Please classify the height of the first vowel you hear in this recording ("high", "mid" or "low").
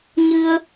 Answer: high